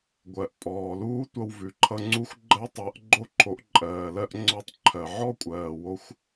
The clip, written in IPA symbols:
ɡʷ ɜ˩ ʔ pʼ ɔː˩ l uː˧˥ tʷ ʌ˧ w v ʉ˩˧ ǃʰ ʌ˧ ŋ͡ǀ u˧˥ xʷ ɡ͡ǃ ɜ˧˥ tˤ ɜ˩˧ ʔ ɡ͡ǃ o˧ ǃʰ o˩˧ ʔ ǃʼ ɜː˩ l ɜ˧ ʔ ŋ͡ǀ ɔ˧ tˤ ǃʰ ɜ˩ ʕ ɔ˥ kʷʼ ɜː˩ w o˧ xʷ

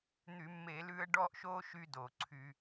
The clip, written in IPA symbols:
n̪ y˧˩˧ mː eː˧˩˧ l ʉː˧ ə̯ ɖ ɔː˧ ʔ ʃ oː˧ ʃ y˧ d o˧˩˧ ǀʰ y˧

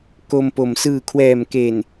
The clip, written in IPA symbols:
k o˧ m p o˩˦ m s ɯː˨˩ kʰ w ɛː˨˩ m k e˨˩ n

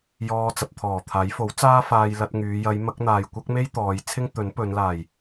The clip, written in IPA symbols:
j ɔː˧ t͡s ɐ˨ p̚ t̪ʰ ɔː˨˩ t̪ʰ aː˨˥ j f o˨˥ w t͡s aː˥ f aː˧ j l ɐ˧ t̚ ŋ yː˨˧ j ɐ˨˧ j m ɐ˧ k̚ n̪ aː˨ j kʷ ɐ˥ k̚ m e˥ j t̪ ɔː˨˧ j t͡sʰ ɪ˥ ŋ t̪ ɵ˨˥ n p ɵ˨˧ n l aː˨˩ j

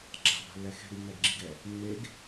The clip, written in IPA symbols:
ɡ͡ǁ a̤ b a̤ lː ɛ x ɛ̤ ɡ mː ɛ ɡ ɡ͡ǁ i ɡ ɛ | nː e ɡ

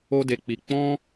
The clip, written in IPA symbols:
o˦ d e˧ k͡p i˧ k͡p ɔ̃˦

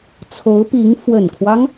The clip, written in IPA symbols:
t͡sʰ o˧˥ ʊ̯ p i˧˥ ŋ f w ə˨˩ n kʰ w ɑ˦ ŋ

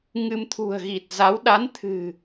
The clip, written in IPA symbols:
ŋ ɨ˧ m t̪ʰ ṳ˨˩ ə̯ ɣ i˨˩ t̚ z a˨˦ w ɗ a˨˦ n t̪ʰ ɨ̤˨˩

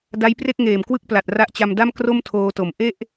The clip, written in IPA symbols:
d a˦˥ j p r e˥˩ k̚ ŋ eː˨˩ m k w ɯ˥˩ k̚ p l a˨˩ t̚ r a˦˥ ʔ t͡ɕ a˧ m d a˥˩ m k r o˥˩ m tʰ oː˧ t o˩˦ m ʔ e˥˩ ʔ

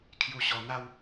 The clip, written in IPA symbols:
kʰ j u˧ ɕ ɔ˧ n̪ a˦ w

